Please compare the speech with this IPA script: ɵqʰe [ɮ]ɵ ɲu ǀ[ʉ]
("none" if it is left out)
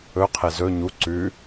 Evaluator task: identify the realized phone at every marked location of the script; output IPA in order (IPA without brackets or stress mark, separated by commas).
z, ʉ